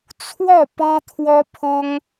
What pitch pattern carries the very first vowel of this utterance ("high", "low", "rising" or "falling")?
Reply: falling